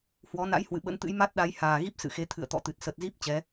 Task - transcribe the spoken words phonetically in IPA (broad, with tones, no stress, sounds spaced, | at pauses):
h w ɔ˨˦ n a̰˧˥ j h w ɨ̰˧˨ ɓ ə̰˧˥ n t̪ ɨ̰˧˥ j m a˦˥ t̚ ɗ a˨˦ j h aː˨˩ ɣ i˦˥ p̚ s ɨ̰˧˨ x e˨˦ t̪ʰ ɨ̰˧˨ ə̯ t̪ ɔ̰˧˨ t̪ ɨ˨˩ t̚ s ə˨˩ t̚ z i˦˥ p̚ t͡ɕ ɛ˨˦